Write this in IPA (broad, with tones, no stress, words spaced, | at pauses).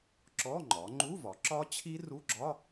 ǁɔ˧˥˧ ŋ͡ǃɒ˩˧ŋ͡ǃu˧˥˧vɒ˩˧ ǁɒ˦˥t͡ɕʰi˦˥ru˧˥˧ɡ͡ǁɒ˧˥˧